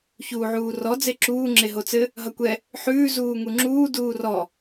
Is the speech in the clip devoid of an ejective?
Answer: yes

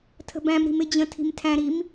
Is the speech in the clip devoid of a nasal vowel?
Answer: no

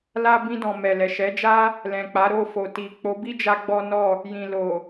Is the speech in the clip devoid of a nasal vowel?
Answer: no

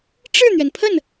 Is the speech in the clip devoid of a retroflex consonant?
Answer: no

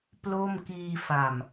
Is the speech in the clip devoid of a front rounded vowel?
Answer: yes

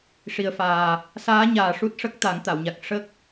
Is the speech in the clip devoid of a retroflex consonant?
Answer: no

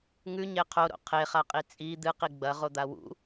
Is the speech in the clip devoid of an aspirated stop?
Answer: no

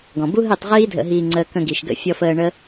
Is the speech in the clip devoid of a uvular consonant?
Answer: no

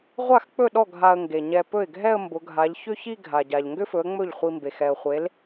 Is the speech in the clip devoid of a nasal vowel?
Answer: yes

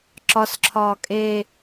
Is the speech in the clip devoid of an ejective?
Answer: no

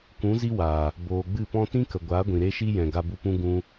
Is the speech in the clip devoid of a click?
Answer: yes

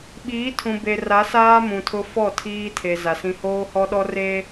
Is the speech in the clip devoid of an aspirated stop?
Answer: no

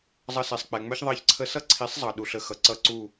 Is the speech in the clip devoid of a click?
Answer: no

